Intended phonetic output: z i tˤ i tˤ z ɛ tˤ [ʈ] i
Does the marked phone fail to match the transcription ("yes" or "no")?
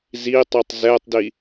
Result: yes